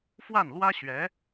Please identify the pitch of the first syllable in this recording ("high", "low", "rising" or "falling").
falling